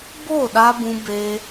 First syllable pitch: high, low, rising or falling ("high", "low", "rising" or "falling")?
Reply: falling